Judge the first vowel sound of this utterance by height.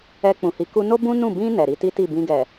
mid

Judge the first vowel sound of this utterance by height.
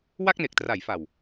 low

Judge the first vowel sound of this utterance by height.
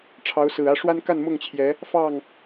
low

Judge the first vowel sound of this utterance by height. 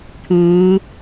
high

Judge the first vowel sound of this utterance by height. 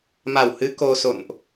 low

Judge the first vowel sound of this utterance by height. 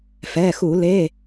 mid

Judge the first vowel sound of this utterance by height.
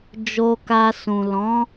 mid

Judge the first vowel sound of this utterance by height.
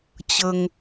mid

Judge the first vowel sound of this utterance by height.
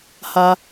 low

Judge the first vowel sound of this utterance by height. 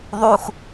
high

